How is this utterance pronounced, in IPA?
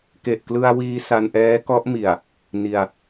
k e˨˩ ʔ k l ɯ˧ a̯ w iː˧ s a˧ n ʔ ɛː˦˥ k ɔ˦˥ ʔ m i˨˩ a̯ | n i˧ a̯

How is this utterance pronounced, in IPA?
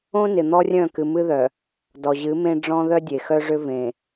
õ˦ n ɪ˨ n̪ ɔ˦ rʲ œ̃˦˨ k ɨ˨ m ɨ˦ ð œ˨ | d ɔ˨ ʑ ɨ˨˦ m ẽ˦ ɖ͡ʐ ɔ̃˦ ð œ˦ dʲ e˨ x œ˦ ʐ ʏ˦ v ẽ˨

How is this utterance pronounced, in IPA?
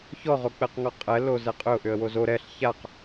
ç ɔ ʁ o k͡p ɛ q ŋ ɔ qʼ ɛ l o z ɛ qʼ ʏ ʊ̯ ʔ ʏ ə̯ w o z o ɾ ɛ ɬ ç a q

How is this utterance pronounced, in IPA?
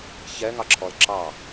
ç ɛ ŋ ɑ ǁʰ ɔ l ǁ ɑ

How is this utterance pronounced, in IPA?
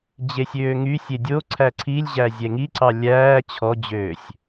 d͡ʑ e sʲ øː ŋ y sʲ e dʲ o ǀʰ æ ǀʰ i lʲ ʑ æ zʲ ɛ ŋ i ǀ ɑ lʲ æː t͡ɕʰ ɔ d͡ʑ øː sʲ

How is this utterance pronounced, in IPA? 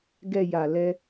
ɡ ɛ˨ j a˨ l ɛ˧

